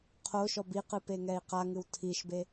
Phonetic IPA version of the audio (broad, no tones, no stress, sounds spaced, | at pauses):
qʰ o ʃ ɔ b i q ɨ p e ŋ ɛ i̯ q a ŋ ɨ w tʰ i ʃ b e